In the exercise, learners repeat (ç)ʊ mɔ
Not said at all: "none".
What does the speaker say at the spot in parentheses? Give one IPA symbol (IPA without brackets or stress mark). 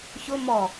ç